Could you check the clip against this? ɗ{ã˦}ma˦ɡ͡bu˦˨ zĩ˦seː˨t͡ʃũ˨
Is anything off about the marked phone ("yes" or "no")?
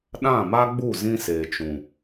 yes